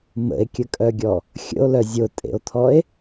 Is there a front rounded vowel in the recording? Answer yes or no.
yes